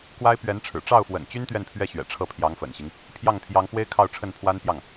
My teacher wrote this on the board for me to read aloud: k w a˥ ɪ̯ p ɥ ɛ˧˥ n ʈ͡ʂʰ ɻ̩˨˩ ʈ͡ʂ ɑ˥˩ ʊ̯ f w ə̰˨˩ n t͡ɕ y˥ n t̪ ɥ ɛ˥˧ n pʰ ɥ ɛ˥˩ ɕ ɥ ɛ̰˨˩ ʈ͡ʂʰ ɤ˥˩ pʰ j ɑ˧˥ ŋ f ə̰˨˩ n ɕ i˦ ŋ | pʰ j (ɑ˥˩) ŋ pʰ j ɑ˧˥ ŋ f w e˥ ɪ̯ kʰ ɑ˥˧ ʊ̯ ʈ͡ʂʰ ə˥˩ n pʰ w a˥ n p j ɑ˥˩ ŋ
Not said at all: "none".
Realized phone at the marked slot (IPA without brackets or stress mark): ɑ˥˩